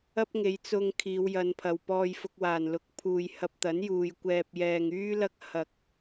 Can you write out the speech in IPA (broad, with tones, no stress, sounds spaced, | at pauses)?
ɐ˥ p̚ ŋ e˨˧ j t͡s ʊ˧ ŋ kʰ iː˨˧ w j ɐ˨˧ n pʰ ɐ˨ w p ɔː˧ j f ʊ˧ k̚ w aː˨˩ n l ʊ˨˥ k̚ pʰ uː˨ j h ɐ˧ p̚ t̪ ɐ˨˥ n j uː˨ j kʷ ɛː˨ p̚ j ɛː˨ ŋ yː˥ l ɐ˥ k̚ h ɐ˨ k̚